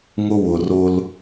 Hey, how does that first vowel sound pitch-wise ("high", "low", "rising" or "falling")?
high